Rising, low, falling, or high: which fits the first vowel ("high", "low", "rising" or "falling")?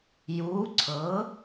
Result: rising